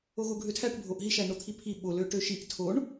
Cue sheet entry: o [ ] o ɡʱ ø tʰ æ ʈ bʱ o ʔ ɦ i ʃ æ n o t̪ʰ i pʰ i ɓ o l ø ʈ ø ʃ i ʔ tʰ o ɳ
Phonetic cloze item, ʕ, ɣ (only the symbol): ɣ